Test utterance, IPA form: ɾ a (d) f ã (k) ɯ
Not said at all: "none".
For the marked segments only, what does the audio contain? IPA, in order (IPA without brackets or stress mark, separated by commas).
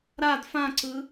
d, ǀ